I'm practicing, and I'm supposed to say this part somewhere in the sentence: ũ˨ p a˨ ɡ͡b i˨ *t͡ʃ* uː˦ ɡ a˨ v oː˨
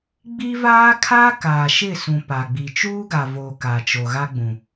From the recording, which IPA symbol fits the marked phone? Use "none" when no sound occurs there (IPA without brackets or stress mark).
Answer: t͡ʃ